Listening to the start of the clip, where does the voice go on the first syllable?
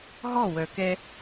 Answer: falling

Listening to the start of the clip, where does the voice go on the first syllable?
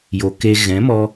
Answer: low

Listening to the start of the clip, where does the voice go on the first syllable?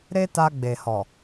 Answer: high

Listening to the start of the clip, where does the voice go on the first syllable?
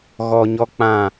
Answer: low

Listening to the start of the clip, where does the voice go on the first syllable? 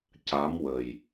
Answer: rising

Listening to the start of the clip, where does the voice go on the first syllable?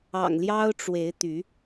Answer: low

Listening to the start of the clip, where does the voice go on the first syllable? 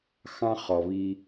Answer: high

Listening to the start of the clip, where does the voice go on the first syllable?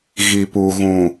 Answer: low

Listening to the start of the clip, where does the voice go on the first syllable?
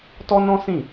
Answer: high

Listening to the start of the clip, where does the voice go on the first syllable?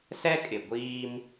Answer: high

